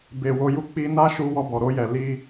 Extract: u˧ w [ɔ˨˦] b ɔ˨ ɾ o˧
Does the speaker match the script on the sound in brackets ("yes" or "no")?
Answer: no